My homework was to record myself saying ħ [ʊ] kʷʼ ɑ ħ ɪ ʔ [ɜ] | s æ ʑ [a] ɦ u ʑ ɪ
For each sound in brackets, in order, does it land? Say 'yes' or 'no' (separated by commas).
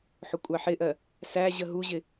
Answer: yes, yes, no